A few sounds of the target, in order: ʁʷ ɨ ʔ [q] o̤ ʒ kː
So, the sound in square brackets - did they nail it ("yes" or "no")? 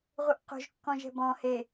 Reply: yes